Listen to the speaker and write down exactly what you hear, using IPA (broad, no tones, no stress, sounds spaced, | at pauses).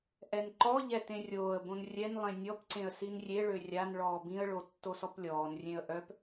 ʔ ɛ n ǃ ɔ ʎ ɛ t ẽ rʲ oː ə̯ b õ n rʲ ɛ n lˠ ẽ nʲ ɔ p ǀ ẽ ə̯ s i n rʲ e ɭ ø rʲ a n ɭ ɔː b ĩ ə̯ ɭ o tː o s ɔ p lʲ ɔː n rʲ ẽ ə̯ ʔ œ p